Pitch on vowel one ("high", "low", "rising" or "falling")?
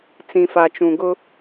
low